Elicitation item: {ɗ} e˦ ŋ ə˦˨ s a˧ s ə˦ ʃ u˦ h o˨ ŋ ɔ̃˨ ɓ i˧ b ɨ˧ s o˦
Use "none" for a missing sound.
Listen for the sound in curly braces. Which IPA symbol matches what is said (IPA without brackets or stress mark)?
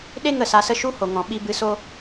ɗ